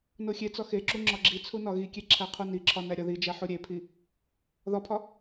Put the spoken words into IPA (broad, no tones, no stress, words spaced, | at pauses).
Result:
noxʲet͡sɒ xeǁu ŋ͡ǁɒɡ͡ǁit͡sʰu nɒɣikʲe ǁʰæqʰuniǁʰɒ næɾʲɒðid͡ʒæ ħuɾʲepʰi | ðɒpʰɒ